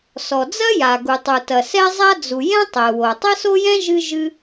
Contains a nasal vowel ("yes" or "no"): yes